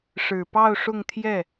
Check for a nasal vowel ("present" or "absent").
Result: absent